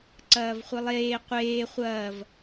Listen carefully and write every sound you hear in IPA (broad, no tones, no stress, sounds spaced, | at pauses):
ǀ ɐː v χʷ i lˠ eː qʷ eː χʷ ɐː v